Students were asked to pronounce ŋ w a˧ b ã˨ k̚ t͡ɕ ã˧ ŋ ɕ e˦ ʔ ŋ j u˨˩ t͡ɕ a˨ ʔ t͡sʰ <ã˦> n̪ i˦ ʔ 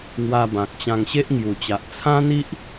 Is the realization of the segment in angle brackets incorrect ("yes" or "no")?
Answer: no